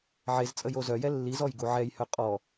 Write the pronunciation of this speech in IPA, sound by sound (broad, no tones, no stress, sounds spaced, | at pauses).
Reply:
ʕ e z t͡sʼ ə j o z œ j ɛ lː i z ɔ j ɡ u ʕ ɛ j h œ qʼ ɔ